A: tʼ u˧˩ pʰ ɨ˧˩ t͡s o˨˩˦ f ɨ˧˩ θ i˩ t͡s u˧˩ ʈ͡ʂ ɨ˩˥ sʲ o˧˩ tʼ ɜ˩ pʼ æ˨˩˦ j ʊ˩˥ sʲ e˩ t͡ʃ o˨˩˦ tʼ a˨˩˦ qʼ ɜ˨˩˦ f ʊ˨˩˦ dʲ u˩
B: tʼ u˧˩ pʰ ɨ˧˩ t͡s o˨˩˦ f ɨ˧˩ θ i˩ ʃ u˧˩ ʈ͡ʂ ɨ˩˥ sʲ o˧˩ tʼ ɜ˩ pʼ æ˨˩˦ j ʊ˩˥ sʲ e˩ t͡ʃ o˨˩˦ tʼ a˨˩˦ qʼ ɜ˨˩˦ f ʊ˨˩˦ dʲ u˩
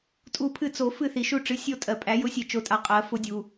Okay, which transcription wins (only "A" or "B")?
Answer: B